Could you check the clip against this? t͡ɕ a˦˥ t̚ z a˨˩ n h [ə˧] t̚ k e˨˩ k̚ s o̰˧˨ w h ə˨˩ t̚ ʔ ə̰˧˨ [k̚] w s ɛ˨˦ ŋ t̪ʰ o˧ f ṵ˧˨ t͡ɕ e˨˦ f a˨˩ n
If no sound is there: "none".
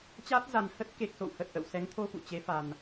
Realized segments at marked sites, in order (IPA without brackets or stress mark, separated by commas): ə˦˥, none